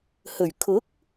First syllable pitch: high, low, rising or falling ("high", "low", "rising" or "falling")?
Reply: low